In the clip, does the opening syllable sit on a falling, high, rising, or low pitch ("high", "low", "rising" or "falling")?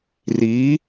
rising